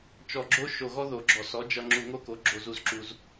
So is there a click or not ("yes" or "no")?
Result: yes